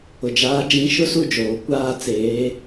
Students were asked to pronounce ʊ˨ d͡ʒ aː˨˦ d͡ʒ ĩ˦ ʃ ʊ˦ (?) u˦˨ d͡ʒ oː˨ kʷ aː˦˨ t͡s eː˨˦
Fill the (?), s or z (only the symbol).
s